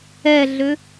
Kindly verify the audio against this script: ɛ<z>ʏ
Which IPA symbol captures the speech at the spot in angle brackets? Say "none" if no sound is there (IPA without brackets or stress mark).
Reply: ɮ